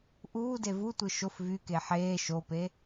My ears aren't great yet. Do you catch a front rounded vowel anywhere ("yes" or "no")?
yes